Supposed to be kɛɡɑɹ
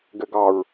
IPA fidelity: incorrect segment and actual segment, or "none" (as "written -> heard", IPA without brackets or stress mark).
k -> ɡ